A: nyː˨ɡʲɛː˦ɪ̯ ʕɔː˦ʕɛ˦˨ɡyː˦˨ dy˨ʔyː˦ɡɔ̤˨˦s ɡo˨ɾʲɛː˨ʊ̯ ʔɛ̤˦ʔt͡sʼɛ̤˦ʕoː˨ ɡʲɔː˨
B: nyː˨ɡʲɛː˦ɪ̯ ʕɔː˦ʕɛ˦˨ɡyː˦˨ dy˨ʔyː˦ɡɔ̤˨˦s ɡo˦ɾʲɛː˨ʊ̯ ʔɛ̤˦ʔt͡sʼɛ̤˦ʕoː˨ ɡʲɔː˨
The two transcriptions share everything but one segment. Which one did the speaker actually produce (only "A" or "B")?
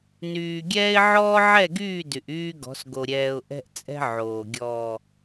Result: A